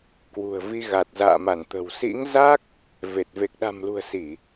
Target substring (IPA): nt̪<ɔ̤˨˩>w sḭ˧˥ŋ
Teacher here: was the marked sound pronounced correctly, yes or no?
no